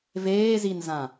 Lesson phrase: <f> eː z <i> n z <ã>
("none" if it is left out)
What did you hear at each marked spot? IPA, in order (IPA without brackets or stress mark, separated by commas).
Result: v, i, ã